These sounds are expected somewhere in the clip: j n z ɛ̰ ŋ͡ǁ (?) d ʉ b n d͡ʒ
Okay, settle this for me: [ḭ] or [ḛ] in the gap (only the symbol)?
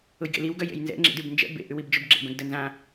ḭ